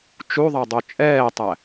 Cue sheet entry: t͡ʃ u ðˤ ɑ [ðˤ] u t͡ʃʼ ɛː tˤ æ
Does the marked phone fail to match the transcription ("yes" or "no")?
yes